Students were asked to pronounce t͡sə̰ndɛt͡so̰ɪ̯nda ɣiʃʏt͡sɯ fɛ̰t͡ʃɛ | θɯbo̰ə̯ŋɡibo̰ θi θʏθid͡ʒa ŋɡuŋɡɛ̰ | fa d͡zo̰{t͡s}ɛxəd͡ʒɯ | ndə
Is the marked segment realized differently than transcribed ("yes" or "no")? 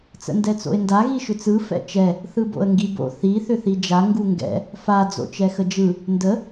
yes